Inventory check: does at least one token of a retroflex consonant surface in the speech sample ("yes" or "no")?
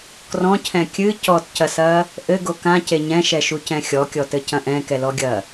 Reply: no